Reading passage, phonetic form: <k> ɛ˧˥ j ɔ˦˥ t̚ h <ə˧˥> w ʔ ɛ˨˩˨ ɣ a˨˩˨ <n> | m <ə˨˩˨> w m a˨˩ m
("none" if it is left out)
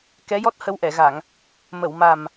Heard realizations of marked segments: k, ə˧˥, ŋ, ə˨˩˨

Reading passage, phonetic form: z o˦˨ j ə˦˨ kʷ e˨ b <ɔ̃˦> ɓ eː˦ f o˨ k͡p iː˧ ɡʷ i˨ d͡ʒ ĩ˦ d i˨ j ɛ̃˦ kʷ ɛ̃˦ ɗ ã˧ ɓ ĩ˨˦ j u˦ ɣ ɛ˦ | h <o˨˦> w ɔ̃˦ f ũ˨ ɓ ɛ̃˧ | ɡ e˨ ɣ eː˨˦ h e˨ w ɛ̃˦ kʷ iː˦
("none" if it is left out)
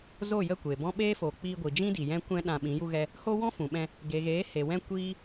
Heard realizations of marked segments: ɔ̃˦, o˦

